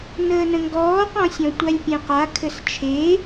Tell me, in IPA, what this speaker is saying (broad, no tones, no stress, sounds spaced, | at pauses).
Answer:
n əː n ə̃ ŋ ɡ ɔː q ɔ̃ sʲ ɔ̃ tʷ a lʲ pʲ ɛ̃ q a kʰ ɘ s t͡ʃʰ e